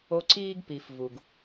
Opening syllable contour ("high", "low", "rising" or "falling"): high